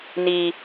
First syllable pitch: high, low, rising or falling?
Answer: low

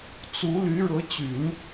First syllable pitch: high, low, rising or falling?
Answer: rising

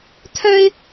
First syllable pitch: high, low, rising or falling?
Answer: high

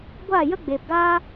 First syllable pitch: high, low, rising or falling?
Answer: falling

